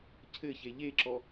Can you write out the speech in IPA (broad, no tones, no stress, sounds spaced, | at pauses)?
cʰ ɘ ç e ʎ e ǁ ɔ